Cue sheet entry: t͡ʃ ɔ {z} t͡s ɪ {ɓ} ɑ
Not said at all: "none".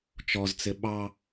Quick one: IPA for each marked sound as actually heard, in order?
z, ɓ

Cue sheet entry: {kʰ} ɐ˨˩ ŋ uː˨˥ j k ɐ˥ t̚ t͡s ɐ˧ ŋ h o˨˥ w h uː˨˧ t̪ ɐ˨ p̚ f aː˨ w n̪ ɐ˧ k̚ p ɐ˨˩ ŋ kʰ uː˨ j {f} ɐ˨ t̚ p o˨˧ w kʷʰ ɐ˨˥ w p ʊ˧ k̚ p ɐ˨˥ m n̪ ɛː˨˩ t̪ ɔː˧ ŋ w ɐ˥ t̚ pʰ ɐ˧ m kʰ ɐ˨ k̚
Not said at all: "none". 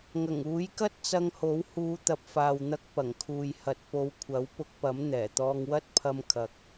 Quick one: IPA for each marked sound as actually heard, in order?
ŋ, h

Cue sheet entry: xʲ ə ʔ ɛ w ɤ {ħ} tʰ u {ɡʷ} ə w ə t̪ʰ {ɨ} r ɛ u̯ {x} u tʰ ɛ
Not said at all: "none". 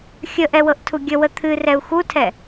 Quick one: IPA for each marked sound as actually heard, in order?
ʔ, ɡʲ, ɨ, x

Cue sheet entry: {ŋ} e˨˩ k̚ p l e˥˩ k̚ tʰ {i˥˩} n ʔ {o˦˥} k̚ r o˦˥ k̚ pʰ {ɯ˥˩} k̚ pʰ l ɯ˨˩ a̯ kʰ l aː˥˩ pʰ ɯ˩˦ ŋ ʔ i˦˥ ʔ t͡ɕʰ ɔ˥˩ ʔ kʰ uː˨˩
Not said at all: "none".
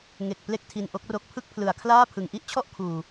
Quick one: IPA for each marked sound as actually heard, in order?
ŋ, i˧, o˦˥, ɯ˥˩

